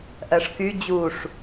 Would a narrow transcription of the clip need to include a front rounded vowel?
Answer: yes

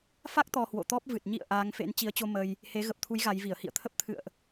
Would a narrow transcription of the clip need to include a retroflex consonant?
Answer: no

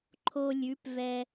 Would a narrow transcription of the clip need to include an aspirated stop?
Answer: yes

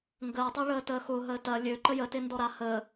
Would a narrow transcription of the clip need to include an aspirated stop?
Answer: no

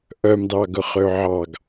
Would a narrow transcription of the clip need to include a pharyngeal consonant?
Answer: yes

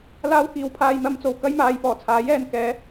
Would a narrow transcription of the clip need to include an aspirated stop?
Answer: yes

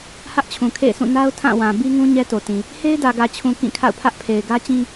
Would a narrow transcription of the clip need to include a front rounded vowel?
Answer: no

